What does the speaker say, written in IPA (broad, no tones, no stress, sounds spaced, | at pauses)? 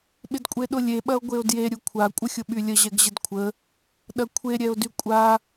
ɓ ɪ d kʷʼ e ɗ ʊ lʲ e ɓ ɐ o̯ ɡʷ e o̯ d j e ɾʲ u kʷʰ a kʷʼ ə xʲ ʊ ɓ y lʲ ə ʑ ɛ ɡ ʑ ɪ d kʷʰ ə | ɗ ɐ kʷʰ e ɾʲ ɛ o̯ d y kʷʼ a